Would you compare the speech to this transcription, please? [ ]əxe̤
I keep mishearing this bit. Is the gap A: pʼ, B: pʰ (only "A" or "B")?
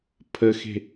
B